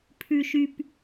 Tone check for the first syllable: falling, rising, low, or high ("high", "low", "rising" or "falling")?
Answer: low